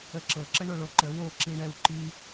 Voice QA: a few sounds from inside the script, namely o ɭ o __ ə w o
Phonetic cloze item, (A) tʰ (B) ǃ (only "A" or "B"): B